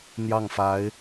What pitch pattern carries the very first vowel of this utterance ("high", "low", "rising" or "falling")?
falling